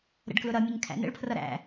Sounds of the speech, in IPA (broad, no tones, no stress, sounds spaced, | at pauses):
ɾ ə̰ ɖ k l ʊ ɾ ʌ mʲ ə ɲ kʰ æ̰ n ə̰ ɭ pʰ r ʌ ɾ æ̰